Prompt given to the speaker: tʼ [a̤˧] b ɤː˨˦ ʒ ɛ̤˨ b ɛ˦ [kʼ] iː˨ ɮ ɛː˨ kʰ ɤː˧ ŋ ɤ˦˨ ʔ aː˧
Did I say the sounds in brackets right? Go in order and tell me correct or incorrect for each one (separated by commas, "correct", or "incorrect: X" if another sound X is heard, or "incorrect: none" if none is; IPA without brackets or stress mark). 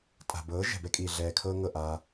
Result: incorrect: a̤˨, correct